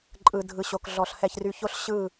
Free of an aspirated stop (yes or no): yes